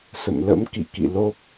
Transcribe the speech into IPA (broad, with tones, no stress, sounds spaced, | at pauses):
s ə̰˧˨ m l ə̰˧˥ m k ḭ˧˨ k ḭ˧˨ l o˦˥ p̚